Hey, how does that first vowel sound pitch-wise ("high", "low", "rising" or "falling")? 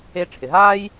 high